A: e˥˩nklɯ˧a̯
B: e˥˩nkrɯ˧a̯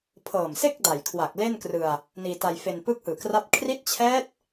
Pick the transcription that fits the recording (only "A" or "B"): B